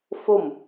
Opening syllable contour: falling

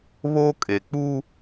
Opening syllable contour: high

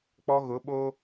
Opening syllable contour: high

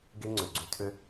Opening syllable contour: high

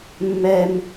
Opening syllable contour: high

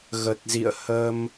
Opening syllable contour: low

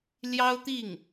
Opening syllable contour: high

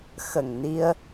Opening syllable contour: low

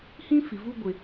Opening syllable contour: high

